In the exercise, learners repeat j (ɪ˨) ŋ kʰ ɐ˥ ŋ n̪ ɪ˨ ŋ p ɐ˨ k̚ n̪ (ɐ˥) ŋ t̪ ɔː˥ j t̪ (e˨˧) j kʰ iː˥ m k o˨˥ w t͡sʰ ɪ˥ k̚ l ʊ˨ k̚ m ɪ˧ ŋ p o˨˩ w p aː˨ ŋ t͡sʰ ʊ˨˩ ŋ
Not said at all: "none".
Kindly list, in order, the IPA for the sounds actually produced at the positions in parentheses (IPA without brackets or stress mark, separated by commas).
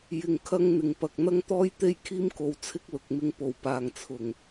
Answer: ɪ˧, ɐ˥, e˥